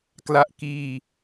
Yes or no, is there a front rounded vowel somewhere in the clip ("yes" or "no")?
no